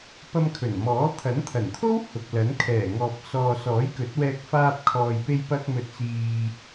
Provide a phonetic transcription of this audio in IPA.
p ɐ˧ m kʰ ɵ˨˩ n m ɔː˨˥ t̪ʰ ɐ˨˥ n t̪ʰ ɐ˨˩ n t̪ʰ o˥ w h ʊ˨ k̚ l ɐ˨˥ n kʰ ɛː˨˩ ŋ ɔː˨ p̚ s ɔː˨ s ɔː˨˥ j k ɵ˨˥ t̚ w ɛː˧ k̚ f aː˧ p̚ kʰ ɔː˨ j p e˧ j p ɐ˧ k̚ m ɵ˧ t̚ t͡s iː˧

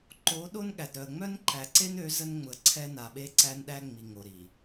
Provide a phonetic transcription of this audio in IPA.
ǃ o˨˦ ɗ o˦ n ɠ æ˨ d ɾ œ˨ ə̯ ŋ͡m œ˦ n ǃ æ˨ ǀ e˦ n ø˨˦ z ə˦ n ŋ͡m ʊ˨ ə̯ ǀʰ ɛ˦ n a˨ ɓ e˦ ǀ æ˦ n ɗ æ˦ ŋ͡m i˨ ŋ o˨ ɾ i˨

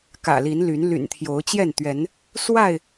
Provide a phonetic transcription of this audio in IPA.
k ä̰˨˩ l i˨˦ n l y˨˦ n l y̰˨˩ n t̪ʰ j o˨˦ ʊ̯ t͡ɕ j ɛ˥˨ n t̪ ɥ ɛ˨˦ n | s w a˥˨ ɪ̯

